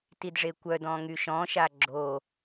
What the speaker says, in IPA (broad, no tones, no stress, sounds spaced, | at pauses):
t i d ʐ e kʷ œ d ɔ̃ ŋ y ʃ ɔ̃ ʃ a ɡ͡ǁ o